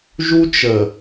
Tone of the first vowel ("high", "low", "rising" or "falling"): high